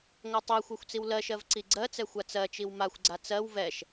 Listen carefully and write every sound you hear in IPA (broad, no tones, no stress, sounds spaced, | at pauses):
ŋʷ a tˤ i xʷ ɛ xʷ t͡s i w l ɜ ʃ ɜ v ǀ i ɡ͡ǀ ɜ t͡s ɛ xʷ a t͡s ɜ t͡ʃ i w m a xʷ ɡ͡ǀ a t͡s ɜ w v ɛ ʃ